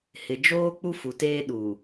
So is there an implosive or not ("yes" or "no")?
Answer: yes